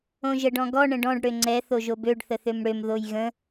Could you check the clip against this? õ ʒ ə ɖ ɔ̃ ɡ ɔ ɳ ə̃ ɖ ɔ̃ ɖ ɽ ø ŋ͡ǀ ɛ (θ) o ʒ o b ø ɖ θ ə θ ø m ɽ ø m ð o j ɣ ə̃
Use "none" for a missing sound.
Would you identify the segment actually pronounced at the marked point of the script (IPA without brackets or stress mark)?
θ